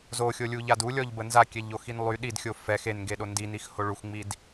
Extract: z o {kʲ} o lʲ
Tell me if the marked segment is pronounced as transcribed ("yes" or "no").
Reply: no